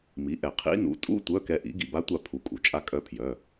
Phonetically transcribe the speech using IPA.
mi˩˥ʔɛ˩ qʰḭ˧˥nṵ˩˥ tʼṵ˧˥˧ tʷœ˧˥˧kɛ˧ʔḭ˩˥ ɡḭ˩ba˧˥tʷa˧ pʰu˩˥kʼṵ˩ t͡ʃʼa˧ kʼœ˧˥pʰjœ˩˧˩

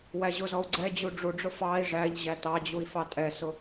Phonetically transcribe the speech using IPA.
wæʑʊzɔu̯ ɡ͡ǀɛd͡ʑu ɖ͡ʐuɖ͡ʐʊ fɑi̯ ʐæʎ ʑætɑd͡ʑui̯ fɑtʼɛsʊ

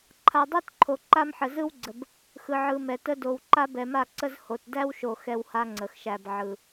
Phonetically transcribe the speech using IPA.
ǃʰa˨dˤæ˦tǃʰo˨ ǃa˦mħə˨zɯ˦wɡ͡ǀə˨b | xɯ˨ʕɯ˨ mɛ˨tə˦ do˨w ǃa˦bɛ˨ma˦˨ǀə˦z ho˨tdæ˦wʃo˨ xɛ˦wha˦ŋ͡ǀə˨xʃæ˨b ʕɯ˨

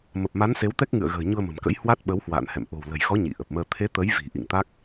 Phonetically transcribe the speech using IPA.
mə˨˩p̚ma˨˦n se˨˦wt̪ɛ˦˥k̚ŋɨ̰˧˨ə̯ɣə̤ː˨˩ ɲu˧ə̯mə̤˨˩mkə̰˧˥j hwa˦˥t̚ɓə˨˦whwa̰ː˧˨nhɛ̰˧˨m ʔo̤˨˩wlə̤˨˩jxɔ˨˦ ɲḭ˧˨ʔə˨˩p̚məː˧ t̪ʰe˨˦ t̪ə˨˦jvi̤˨˩ ʔḭ˧˨ŋt̪a˦˥k̚

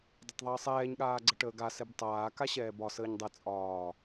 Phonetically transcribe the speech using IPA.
dˤətˤðˤəːsˤɛːɲ ɠaːɡ͡ǀəʈəːɡa sɛbtˤaː kaɕɛːbɒ səːɲdˤɛ t͡sʼɒː

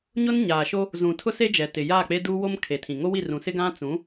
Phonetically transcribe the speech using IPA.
ɲʊ˦nɲaː˨ʃo˦ | zũ˨tʰʊ˦ se˦ d͡ʒɛ˨tɪ˨jaː˦˨k͡pe˦ duː˦wo˦m kʰe˨tʰĩ˨ ŋo˦wi˦˨rũ˨ sɪ˦ɡã˦ t͡sũ˨˦

